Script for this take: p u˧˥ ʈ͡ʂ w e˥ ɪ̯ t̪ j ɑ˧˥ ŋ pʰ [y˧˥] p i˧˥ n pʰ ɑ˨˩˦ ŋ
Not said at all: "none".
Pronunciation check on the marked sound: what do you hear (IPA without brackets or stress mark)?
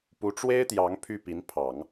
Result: y˥˩